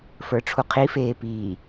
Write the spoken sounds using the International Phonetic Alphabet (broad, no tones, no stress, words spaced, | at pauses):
fə˞ʈ͡ʂʰuqʰifeː piː